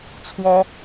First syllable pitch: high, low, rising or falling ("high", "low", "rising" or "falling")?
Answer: high